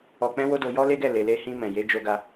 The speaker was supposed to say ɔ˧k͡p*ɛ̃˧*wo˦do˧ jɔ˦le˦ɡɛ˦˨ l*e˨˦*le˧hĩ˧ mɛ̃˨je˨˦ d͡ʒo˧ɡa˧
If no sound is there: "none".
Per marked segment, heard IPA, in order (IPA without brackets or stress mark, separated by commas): ɛ̃˦, e˨